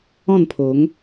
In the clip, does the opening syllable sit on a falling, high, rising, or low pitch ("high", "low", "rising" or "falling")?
falling